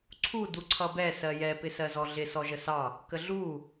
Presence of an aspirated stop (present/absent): present